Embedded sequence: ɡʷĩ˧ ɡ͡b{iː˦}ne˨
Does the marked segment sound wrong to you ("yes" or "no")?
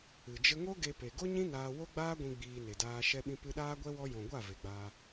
yes